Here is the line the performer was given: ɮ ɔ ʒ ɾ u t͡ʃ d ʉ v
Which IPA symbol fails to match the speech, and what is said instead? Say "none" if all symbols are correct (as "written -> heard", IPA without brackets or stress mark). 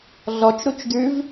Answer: ʒ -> t͡ʃ